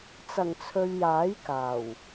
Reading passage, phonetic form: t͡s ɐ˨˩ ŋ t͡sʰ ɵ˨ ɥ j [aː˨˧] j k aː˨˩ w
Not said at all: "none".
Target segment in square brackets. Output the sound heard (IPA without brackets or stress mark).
aː˨˥